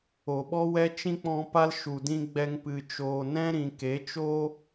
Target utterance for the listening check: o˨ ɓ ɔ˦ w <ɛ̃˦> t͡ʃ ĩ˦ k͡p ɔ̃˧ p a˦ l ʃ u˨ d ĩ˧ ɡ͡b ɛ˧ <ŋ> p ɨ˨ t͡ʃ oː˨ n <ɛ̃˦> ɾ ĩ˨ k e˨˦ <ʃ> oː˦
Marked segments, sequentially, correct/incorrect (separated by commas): incorrect, correct, correct, incorrect